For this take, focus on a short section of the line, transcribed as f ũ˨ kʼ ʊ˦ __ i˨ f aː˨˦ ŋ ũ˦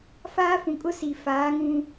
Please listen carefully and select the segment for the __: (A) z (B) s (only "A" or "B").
B